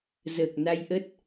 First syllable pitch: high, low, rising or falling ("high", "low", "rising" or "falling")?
low